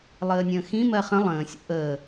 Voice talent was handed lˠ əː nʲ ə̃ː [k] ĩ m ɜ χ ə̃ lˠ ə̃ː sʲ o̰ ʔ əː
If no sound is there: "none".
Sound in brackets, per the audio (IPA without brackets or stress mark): x